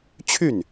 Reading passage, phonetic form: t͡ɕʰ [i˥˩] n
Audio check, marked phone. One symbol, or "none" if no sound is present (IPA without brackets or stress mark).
y˥˩